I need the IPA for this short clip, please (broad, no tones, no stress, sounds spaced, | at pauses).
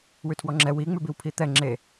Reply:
w ʉ tʰ w ɔ ŋ͡ǁ ɛ w i ŋ͡m ʉ b i w pʰ i t̪ ɛ ŋ͡ǁ e